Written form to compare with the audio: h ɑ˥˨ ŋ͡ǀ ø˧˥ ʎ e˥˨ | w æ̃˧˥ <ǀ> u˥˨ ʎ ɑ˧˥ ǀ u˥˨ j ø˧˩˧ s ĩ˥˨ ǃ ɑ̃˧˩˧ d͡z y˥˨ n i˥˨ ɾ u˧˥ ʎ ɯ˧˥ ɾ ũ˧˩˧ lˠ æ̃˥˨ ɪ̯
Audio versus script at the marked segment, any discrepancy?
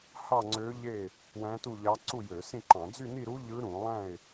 yes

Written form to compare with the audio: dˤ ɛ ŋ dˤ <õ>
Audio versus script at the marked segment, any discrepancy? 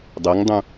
yes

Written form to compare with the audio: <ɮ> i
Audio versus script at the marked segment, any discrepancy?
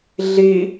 no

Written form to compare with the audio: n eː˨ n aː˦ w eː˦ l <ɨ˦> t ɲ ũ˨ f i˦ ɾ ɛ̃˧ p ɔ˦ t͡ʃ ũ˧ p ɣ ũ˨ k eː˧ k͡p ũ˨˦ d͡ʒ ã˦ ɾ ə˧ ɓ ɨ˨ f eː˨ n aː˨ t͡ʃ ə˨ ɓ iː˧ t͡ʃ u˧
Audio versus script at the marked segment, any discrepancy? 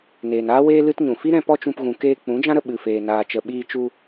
no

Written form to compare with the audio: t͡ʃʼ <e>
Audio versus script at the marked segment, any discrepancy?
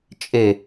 no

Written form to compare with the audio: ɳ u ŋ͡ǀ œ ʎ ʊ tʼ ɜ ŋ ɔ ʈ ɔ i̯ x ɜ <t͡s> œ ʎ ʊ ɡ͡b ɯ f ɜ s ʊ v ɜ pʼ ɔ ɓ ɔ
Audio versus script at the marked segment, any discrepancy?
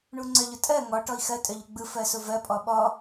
yes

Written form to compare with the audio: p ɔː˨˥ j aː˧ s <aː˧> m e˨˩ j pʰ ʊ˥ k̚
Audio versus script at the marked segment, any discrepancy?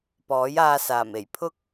yes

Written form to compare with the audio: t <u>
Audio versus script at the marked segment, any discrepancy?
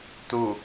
no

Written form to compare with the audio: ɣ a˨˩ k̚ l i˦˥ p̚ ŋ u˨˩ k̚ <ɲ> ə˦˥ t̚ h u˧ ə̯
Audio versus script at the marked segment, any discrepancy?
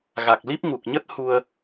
no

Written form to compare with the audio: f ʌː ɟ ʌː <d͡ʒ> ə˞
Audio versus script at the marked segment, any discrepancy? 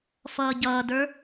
yes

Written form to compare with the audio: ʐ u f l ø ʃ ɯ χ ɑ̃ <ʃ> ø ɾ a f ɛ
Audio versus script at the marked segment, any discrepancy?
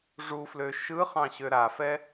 yes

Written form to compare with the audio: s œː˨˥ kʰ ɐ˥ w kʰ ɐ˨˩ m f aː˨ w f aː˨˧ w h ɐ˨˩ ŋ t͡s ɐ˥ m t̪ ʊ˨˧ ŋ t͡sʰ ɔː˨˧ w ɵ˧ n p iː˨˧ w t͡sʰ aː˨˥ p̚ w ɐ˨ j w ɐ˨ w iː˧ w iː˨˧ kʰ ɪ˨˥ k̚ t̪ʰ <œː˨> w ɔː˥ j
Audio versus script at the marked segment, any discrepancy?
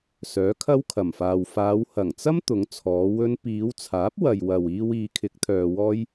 yes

